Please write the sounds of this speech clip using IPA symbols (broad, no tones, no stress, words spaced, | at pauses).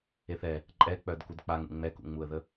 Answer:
eθɛ | ǃʼɛk͡pœd kudk͡paŋṵ ŋ͡mɛkṵŋ͡muə̯ðə